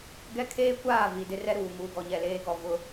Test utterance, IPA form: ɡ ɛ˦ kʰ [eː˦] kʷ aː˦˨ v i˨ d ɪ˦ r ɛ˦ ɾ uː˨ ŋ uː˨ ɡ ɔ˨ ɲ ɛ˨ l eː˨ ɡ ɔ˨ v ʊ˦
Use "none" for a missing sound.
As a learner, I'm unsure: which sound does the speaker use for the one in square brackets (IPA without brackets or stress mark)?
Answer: eː˦